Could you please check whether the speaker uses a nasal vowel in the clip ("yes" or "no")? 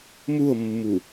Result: no